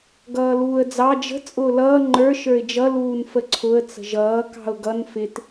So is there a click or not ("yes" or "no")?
yes